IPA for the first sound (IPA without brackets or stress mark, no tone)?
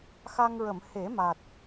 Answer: x